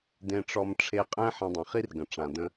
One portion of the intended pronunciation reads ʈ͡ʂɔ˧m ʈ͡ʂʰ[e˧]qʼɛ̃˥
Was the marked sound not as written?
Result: no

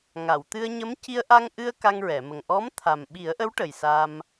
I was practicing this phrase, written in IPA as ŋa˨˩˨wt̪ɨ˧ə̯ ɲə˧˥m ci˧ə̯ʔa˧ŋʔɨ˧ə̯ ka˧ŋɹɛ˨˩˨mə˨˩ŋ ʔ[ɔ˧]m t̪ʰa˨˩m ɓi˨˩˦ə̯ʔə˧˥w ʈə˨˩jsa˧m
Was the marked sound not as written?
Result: yes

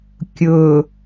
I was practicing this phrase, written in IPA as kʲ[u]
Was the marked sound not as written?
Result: yes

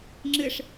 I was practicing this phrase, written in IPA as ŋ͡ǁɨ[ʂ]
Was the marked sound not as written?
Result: no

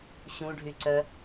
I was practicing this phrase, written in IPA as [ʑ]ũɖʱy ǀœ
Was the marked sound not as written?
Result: yes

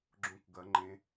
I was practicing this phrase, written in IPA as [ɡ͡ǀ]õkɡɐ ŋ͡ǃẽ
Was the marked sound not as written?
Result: yes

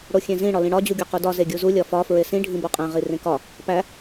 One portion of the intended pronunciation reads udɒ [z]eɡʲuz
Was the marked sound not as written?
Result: no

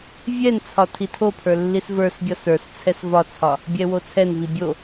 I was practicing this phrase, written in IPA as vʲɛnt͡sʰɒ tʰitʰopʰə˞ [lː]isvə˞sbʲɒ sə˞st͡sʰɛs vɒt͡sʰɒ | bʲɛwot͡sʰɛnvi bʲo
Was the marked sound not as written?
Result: no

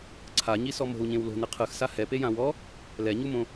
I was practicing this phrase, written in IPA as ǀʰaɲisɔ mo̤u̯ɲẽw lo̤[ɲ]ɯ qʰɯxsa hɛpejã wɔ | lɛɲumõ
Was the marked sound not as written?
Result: yes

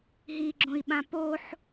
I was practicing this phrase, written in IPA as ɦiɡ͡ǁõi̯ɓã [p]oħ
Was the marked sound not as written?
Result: no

